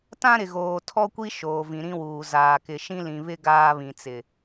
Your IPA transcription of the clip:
t ã˦ ɾ ɪ˨ ɣ oː˨ tʰ ɔ˦ kʷ i˦ ʃ oː˨ v ĩ˨ ɾ ĩ˦ w uː˨ z aː˨ k ɪ˨ ʃ ĩ˦ l ĩ˨ β ɪ˦ ɡ aː˦ β ĩ˨ t͡s ɪ˨

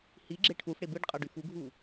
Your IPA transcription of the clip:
h i ɡ͡ǁ e ʈʰ u f ɽ e b ɯ ɖ qʼ ɑ ɖ y f u ɡʱ u

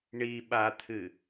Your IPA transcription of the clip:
ɳ i ɓ a t̪ʰ ɨ

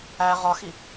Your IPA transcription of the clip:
æ ʁ ɒ x i

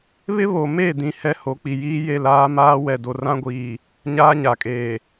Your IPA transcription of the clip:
β ɪ˦ β o˨ m e˦˨ d ĩ˨ h ɛ˦ h o˨˦ k͡p i˨ j iː˦ j e˦˨ l aː˦ m aː˦ w ɛ˨ d o˨ r ã˦ ɡʷ iː˨ | ɲ aː˦ ɲ a˨ kʼ eː˨

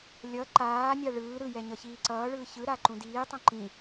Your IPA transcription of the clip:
lʲ ʌ ǃ aː nʲ a ɭ ɯː ɾ ɯ j ɛ ɲ ʌ ç iː ǀ ʌː ɭ ɯː ç ɯ ɾ a ǃ ũ d iː tˤ õ ǃ ĩ

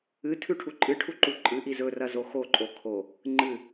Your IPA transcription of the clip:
ɨ tʰ ʉ ʈʰ u ǃʼ ɨ ʈʰ u ǃ u ǃʼ ɨ ʔ i z ɵ r ɐ z o x o ǃʼ o kʰ o | ŋ͡ǃ ɨ

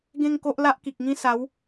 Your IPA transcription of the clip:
ɡ ẽ˥˧ ŋ k o˦ ʔ l a˦ ʔ k i˨ k̚ ŋ ĩ˦ s a˨˦ w

